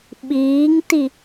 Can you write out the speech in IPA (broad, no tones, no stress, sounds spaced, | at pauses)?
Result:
ɓ iː ŋ t i